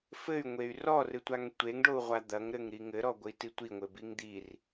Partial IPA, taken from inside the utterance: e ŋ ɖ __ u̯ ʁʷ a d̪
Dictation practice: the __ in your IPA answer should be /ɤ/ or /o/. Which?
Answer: o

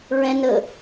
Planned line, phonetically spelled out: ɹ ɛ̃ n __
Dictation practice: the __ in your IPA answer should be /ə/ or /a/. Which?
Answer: ə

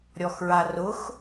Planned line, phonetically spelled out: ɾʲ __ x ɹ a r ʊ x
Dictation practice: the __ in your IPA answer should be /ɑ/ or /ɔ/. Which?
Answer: ɔ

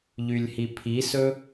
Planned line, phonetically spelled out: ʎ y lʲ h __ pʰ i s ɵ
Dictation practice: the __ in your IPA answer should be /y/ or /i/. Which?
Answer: i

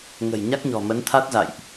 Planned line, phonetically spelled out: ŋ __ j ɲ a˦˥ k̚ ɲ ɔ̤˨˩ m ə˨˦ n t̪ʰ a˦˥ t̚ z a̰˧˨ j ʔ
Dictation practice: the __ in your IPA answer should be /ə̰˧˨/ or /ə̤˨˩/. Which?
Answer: ə̤˨˩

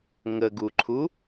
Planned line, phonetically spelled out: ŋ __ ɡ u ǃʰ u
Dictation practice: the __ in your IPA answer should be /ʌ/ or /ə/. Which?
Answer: ə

